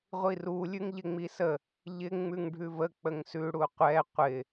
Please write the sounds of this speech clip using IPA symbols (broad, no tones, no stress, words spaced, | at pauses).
ʁʷiru lʲʉŋʎɪŋ͡misə | ʎɪ ŋ͡mʉŋɖʱʉvə k͡pəŋsʉ ɽuqʷɛ qʷɪ